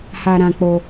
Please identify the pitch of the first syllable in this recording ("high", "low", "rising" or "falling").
high